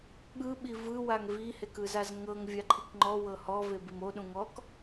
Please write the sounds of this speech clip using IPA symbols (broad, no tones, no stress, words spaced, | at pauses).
ɠɯɓi vɯwaŋ vihek ɯzazŋɤŋ vʲaǃʰikŋ͡ǃɔ wɤhɔve bimoɗũŋɔk